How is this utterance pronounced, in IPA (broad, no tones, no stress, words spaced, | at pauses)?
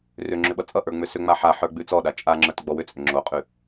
rʏ ŋ͡ǁʏɓʌt͡sʼʌʔə˞ ŋ͡mʏsʏŋ͡ma ħa ħə˞ɡ͡bʉt͡sɔɗa t͡ʃʼaŋ͡ǁə˞t ɡ͡bɔwʏt͡sʼʏ ŋ͡ǁoqʼʉ